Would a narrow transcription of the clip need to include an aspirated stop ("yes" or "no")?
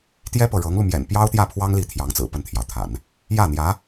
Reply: yes